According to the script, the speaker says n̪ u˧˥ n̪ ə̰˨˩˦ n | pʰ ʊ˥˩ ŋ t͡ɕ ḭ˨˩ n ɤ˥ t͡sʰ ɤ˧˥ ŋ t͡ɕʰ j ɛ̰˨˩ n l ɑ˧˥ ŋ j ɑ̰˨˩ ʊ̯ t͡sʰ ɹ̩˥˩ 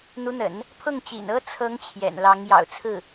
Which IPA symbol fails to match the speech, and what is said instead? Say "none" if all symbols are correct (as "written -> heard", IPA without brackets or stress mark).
none